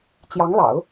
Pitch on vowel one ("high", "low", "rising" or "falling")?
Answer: rising